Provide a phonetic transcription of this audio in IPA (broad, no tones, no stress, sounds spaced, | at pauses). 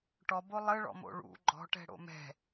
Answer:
ʈ ɔ b o lˠ ə ɭ ɔ̰ m o̰ ɭ ṵ ɡ͡ǃ ɔ̤ ʈ ɛ̤ ɽ o̰ m ɛ̤